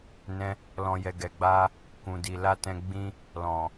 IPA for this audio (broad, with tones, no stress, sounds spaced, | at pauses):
n ɛ̃˧ | l ɔ̃˨ j ɛ˨ ɡ ɛ˨ ɡ͡b a˧ | k ũ˨ d i˨ l a˧ t ɛ̃˧ ɡ͡b ĩ˧ | l ɔ̃˨